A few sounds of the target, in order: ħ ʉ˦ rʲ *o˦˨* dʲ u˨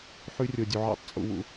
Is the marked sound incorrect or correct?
incorrect